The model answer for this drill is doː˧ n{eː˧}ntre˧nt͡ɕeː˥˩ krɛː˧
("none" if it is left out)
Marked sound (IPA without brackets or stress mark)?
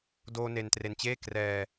e˧